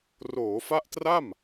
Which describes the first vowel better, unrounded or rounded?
rounded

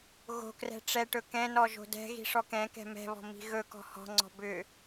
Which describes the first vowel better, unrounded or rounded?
rounded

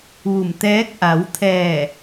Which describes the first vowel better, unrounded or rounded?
rounded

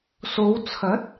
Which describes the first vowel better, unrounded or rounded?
rounded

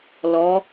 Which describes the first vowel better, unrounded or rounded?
rounded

